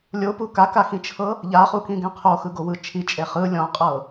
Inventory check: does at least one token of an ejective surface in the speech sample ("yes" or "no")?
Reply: yes